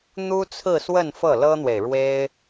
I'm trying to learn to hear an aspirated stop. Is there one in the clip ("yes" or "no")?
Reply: yes